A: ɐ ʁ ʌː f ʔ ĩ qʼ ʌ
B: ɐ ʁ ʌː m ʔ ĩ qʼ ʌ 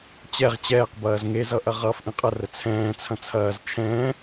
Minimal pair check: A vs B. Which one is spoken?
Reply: A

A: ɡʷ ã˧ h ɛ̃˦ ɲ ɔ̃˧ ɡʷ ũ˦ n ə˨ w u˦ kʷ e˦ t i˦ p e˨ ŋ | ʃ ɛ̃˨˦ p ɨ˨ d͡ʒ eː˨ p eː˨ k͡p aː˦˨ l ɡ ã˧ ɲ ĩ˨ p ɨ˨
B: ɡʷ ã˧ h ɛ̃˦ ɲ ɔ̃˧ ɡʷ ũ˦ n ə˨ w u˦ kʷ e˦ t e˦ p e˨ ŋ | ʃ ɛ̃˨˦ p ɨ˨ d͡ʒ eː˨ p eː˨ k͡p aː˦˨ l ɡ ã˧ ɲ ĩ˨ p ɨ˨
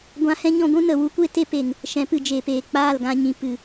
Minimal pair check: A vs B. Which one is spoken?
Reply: B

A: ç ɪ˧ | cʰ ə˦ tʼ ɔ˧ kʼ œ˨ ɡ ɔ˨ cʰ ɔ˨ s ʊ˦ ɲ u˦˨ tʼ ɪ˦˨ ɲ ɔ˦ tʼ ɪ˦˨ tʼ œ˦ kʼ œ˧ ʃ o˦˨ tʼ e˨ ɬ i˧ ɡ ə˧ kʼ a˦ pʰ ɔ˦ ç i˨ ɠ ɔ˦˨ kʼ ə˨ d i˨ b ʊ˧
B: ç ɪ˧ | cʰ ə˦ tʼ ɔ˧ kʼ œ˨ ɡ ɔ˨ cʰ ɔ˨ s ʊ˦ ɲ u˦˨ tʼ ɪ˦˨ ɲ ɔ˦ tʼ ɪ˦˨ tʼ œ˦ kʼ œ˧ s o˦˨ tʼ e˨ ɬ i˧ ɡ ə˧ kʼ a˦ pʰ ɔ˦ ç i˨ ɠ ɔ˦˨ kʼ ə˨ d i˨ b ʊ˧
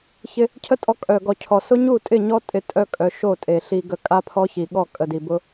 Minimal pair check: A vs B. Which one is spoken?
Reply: A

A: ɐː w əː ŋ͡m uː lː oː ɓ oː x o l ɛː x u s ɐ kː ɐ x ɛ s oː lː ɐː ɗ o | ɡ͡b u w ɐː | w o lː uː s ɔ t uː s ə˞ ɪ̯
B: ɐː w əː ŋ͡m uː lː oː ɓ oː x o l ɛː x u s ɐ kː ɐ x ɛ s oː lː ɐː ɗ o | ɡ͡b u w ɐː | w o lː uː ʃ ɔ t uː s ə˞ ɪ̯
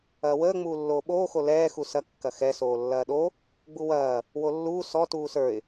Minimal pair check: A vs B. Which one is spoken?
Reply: A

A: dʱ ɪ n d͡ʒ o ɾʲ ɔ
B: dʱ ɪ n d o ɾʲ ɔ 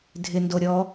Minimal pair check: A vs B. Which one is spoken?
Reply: B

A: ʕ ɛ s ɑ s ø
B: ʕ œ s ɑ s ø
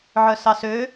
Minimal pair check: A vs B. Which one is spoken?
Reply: B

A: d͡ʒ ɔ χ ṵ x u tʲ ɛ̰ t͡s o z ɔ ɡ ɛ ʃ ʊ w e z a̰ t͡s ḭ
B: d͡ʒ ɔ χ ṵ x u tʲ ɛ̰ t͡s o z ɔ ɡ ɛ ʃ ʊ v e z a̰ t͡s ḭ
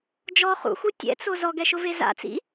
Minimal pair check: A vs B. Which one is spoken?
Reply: B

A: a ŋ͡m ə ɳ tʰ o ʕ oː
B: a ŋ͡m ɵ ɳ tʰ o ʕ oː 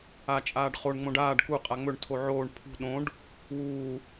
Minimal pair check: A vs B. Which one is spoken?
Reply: B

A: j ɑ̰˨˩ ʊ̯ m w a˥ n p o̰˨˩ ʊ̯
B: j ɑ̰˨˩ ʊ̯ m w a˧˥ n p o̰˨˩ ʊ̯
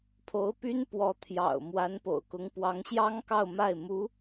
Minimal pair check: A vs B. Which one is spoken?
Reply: B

